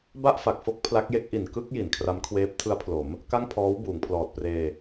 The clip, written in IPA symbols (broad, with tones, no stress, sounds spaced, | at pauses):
b a˥˩ ʔ f a˨˩ k̚ f o˥˩ k̚ pʰ l a˦˥ k̚ j e˦˥ k̚ ʔ i˨˩ n k ɯ˥˩ k̚ j i˩˦ n kʰ r a˦˥ m kʰ w eː˦˥ p̚ tʰ ɯ˦˥ a̯ pʰ l o˩˦ m | k a˥˩ ŋ pʰ ɔː˦˥ w b uː˩˦ ŋ pʰ l ɔː˨˩ t̚ p r eː˧